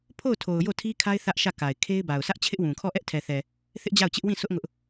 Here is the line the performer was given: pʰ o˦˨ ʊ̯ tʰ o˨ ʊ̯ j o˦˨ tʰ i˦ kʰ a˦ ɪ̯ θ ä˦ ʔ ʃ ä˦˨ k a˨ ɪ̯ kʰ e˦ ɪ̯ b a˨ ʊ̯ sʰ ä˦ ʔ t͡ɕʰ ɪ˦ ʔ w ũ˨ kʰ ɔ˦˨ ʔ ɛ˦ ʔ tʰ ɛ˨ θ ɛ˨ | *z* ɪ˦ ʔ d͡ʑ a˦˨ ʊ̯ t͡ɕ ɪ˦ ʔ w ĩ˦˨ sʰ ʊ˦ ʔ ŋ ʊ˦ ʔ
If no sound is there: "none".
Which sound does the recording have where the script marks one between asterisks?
θ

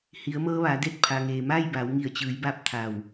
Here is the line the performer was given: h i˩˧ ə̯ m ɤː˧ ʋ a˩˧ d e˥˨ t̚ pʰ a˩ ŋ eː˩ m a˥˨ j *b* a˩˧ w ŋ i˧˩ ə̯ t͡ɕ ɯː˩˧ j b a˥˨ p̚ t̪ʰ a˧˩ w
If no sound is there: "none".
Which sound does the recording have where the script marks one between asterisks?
b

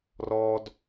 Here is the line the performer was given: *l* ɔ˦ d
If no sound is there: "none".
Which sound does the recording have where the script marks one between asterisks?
r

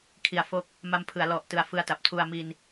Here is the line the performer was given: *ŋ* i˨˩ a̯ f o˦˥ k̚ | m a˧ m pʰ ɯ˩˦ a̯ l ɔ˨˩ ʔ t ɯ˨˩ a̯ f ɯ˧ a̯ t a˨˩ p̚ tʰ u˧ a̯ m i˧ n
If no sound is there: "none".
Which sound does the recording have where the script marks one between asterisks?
kʰ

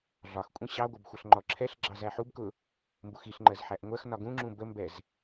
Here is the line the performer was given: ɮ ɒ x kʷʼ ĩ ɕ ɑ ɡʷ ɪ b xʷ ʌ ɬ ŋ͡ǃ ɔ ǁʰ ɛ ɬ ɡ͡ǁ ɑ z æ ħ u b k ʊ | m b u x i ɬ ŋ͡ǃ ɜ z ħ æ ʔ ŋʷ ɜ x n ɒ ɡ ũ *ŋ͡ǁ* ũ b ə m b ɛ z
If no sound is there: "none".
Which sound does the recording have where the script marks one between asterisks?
ŋ͡ǁ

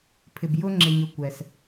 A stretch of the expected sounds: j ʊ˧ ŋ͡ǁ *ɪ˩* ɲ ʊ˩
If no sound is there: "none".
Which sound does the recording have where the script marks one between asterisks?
ɪ˩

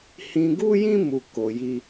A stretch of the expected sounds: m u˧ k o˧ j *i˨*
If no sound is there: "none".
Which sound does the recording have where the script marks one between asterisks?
i˦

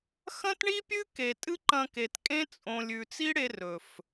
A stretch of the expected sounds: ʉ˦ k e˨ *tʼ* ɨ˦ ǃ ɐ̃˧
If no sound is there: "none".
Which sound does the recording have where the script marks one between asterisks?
tʼ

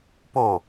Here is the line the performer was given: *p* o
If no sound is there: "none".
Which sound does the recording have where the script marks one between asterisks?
p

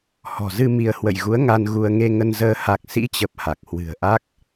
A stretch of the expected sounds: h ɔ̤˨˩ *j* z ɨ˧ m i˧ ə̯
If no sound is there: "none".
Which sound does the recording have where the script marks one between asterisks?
none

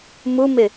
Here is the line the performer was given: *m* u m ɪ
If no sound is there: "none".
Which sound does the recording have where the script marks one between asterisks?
m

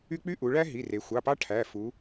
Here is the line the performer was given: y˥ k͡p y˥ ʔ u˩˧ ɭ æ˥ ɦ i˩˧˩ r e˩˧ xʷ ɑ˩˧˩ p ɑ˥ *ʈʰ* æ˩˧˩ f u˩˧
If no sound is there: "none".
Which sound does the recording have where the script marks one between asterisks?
ʈʰ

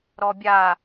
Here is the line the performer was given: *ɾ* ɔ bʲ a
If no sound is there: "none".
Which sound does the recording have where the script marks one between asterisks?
ɾ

